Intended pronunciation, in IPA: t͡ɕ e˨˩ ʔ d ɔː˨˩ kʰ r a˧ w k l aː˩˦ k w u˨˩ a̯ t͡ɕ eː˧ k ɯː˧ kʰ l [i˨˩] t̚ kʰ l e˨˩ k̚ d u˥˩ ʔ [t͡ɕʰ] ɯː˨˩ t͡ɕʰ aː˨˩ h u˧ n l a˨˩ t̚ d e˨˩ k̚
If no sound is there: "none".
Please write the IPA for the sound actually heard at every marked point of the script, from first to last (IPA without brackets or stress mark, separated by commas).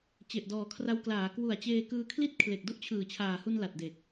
i˥˩, t͡ɕʰ